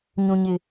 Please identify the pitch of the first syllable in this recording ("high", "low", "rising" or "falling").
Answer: low